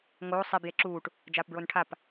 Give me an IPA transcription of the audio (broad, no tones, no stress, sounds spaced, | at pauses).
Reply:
ŋ oː sˤ i b j e ǁ uː ʈ | d͡ʒ aː p b ɹ o n ʈʰ a p